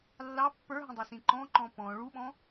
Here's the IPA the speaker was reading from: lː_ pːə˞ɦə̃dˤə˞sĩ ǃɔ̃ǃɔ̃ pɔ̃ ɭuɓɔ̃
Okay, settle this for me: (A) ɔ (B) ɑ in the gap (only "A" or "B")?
B